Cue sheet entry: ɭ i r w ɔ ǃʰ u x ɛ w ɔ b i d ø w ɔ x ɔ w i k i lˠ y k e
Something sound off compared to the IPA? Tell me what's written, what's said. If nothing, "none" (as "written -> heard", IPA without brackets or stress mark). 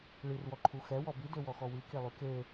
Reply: none